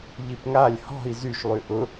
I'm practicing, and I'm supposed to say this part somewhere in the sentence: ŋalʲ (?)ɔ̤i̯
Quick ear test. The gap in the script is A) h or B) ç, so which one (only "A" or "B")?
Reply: A